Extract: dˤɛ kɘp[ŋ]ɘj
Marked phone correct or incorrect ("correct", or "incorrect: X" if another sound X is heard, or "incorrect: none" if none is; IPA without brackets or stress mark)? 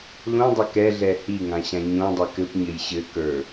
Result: incorrect: ɲ